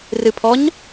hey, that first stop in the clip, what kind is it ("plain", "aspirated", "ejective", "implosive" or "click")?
aspirated